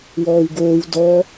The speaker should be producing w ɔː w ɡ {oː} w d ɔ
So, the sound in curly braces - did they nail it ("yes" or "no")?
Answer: yes